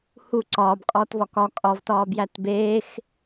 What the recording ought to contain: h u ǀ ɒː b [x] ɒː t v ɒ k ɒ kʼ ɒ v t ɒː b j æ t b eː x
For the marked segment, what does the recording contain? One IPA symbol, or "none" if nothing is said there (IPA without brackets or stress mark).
kʼ